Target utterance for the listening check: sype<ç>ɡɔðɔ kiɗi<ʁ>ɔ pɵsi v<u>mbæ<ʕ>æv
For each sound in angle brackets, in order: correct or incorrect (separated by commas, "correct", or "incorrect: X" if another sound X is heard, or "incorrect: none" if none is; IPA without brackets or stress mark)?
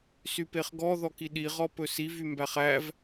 incorrect: χ, correct, incorrect: y, incorrect: χ